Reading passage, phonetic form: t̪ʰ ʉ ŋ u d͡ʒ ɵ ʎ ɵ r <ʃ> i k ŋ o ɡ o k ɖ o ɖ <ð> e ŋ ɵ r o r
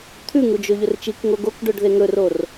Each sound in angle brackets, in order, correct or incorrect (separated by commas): incorrect, correct